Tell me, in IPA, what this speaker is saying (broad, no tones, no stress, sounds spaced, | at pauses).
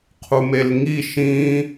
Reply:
qʰ u m e l ŋ i ʃ ĩ